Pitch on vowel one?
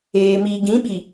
low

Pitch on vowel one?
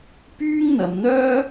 high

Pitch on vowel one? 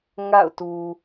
falling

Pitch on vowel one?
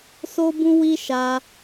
high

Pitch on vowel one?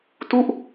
falling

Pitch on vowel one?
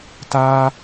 high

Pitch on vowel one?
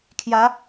rising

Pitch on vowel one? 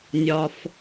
low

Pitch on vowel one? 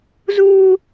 high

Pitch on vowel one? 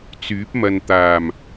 rising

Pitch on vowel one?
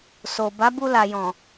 low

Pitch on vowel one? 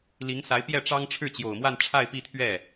rising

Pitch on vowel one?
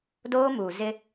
high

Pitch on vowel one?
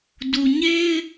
low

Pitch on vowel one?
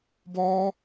high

